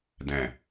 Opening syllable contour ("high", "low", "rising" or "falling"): low